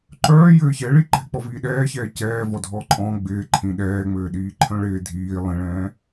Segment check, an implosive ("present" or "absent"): present